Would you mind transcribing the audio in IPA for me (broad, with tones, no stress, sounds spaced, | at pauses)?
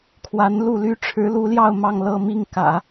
kʰ w a˧˥ n l u˥˩ l y˥ ʈ͡ʂʰ ɻ̩˧˥ l u˧˥ l j ɑ˥˧ ʊ̯ m ɑ˥˧ ŋ l ɤ˥˧ m i˥˩ ŋ k ä̰˨˩˦